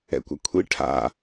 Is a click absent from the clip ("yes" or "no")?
yes